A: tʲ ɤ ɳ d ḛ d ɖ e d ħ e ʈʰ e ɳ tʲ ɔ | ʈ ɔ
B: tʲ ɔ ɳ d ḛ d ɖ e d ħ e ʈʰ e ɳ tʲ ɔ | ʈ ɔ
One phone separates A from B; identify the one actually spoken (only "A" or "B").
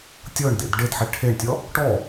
A